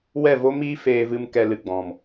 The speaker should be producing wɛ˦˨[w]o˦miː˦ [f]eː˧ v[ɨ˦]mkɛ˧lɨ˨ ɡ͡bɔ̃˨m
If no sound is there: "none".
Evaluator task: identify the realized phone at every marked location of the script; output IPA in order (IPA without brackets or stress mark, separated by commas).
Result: v, f, ɨ˦